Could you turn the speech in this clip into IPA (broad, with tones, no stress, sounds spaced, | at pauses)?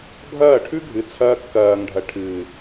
bʱ ɐː˦˨ ʈʰ ʉ˦ ɡʱ ɨ˨˦ t͡sʰ ɐː˧ kː ɐː˨ ŋ ɖʱ ɐ˨ ʈʰ ɨː˨